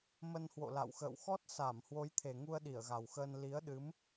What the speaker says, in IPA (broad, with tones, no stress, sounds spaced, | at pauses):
m ə˧ n h w o̰˧˨ l a̰˧˨ w x ə̰ː˧˨ w x ɔ˦˥ t̚ s a˧˩ m h w o˨˦ j t̪ʰ e˨˩ ŋ u˧ ə̯ ɗ i˧˩ ə̯ ɣ a˨˩ w x əː˧ n l i˨˦ ə̯ ɗ ɨ˨˦ m